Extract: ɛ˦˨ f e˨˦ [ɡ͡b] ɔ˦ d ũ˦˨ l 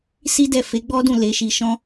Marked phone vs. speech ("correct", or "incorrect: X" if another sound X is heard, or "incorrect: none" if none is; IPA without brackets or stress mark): correct